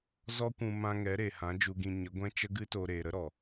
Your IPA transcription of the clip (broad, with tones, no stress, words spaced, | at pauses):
zɔ˦kʷũ˧ mã˦ ŋɛ˨˦ɾe˨hã˨˦ d͡ʒu˧ɡĩ˧ ɲə˨˦ɡʷɛ̃˦ t͡ʃə˦ɡɨ˦to˧ ɾeː˨ɾə˦ɾɔ˨